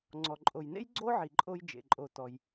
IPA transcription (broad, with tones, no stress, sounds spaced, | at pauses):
ŋ͡ǀ ɔ˩ ǃʼ o˩ j n ḛ˥ j ɡ͡ǀ o˥ ʕ i˩ ǃʼ o˧ j d͡ʒ ḛ˩ ǃʼ o˩ t ɔ˩ j